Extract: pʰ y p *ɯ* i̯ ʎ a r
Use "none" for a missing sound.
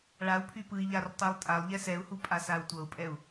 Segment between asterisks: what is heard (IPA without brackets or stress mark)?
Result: ɯ